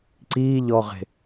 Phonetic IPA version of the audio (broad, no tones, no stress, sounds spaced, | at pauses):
ǀ i ʎ ɔ ʁ e̤